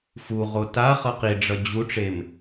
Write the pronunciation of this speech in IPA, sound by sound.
fuʁo ta χʌqiɖ͡ʐʌ d͡ʑuʈ͡ʂem

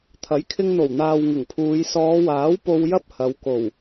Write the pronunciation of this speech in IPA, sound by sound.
t̪ʰɐ˨˥jkʰɪ˧ŋn̪o˨˩wn̪aː˨w ŋɪ˨˩ŋpʰuː˨˧j sɔː˨˧waː˨˥w po˧wjɐ˥p̚ hɐ˨˧w ko˨˩w

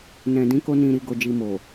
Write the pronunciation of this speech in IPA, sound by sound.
nɛ̃˨dĩ˨˦ko˧ nĩ˨ɾi˨ɡo˨d͡ʒi˨ mo˨

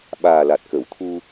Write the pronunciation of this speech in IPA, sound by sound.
ɓaː˨˩la˨˩t̚kə˨˩˨wt̪ʰu˧

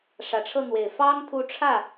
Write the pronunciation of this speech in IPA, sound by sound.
ʂä˨˩ʈ͡ʂʰɤ˥˩n̪we˨˩ɪ̯ fɑ˥ŋ t̪ʰu˧˥ʈ͡ʂʰä˥˩

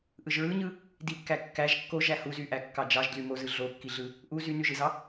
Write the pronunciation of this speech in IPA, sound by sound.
ʔɯʒɹɯɲɯ | dikːæ kːæʒ kːoʒæ huzyʔæ kːɑd͡ʒɑʒdly mozɯ ɮokːiɮɯ | ʔu zynyʒɯzɑ

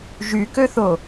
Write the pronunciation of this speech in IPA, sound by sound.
ʒykøθo

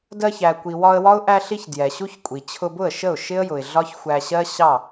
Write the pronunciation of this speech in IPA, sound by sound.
dɜ˧çæ˨kʷi˨ wɒ˧ə̯wɒ˦ʊ̯ ʔæ˧ɬi˧ç djɛ˨ɕu˦çkʷʼi˨ t͡ɕʰʊ˧bʊ˦˨ə̯ʃə˦˨ʊ̯ ʃɪ˦ə̯ jʊ˨ɪ̯ɮɒ˦çxʷæ˧ɕɜ˦ ɕɑ˦˨

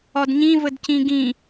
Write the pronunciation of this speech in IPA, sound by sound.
ɒdɲĩ vədcĩɡĩ

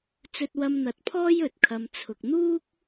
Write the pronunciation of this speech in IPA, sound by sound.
t͡sɵ˧t̚wɐ˧m n̪ɐ˨˥t̚pʰɔː˥j ɵ˨t̚ kʰɐ˨mt͡sʰʊ˨k̚n̪uː˥k̚

